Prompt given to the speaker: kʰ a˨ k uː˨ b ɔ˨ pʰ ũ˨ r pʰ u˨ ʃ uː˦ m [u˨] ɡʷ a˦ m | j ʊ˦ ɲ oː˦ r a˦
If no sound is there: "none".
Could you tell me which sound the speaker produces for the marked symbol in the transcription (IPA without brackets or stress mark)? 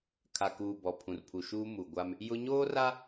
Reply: u˨